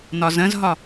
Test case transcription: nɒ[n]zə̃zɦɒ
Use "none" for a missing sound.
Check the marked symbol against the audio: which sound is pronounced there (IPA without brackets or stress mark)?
none